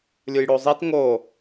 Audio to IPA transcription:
lʲujɽozˤit ŋo

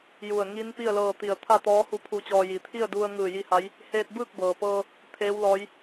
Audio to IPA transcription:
ju˧˩ə̯ ŋi˧˥n pi˥˨ə̯lɤː˧t̪i˧˩ə̯ t̪ʰa˥˨t̪ɔː˧˥hu˧ pʰu˧t͡ɕɔː˧ ji˩˧t̪ʰi˥˨ə̯du˧ə̯ ŋɯː˧˩ji˧ha˧˥j | heː˧t̚bɯː˥˨k̚bɤː˩pɤː˧ | t̪ʰeː˧˥wlɔː˧˥j

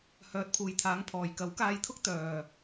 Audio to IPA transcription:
hœː˨˥t̚pʰuː˨˩jt̪ʰaː˨˥ŋ pʰɔː˨˩j kɐ˨˥wkaː˧jt̪ʰʊ˥k̚ t̪œː˨˩

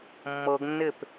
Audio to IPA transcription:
mːɤɡnːɪp

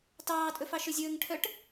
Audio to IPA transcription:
tɑːtʼɵ fɑʃɵzʲɵːŋʈʰœʈ

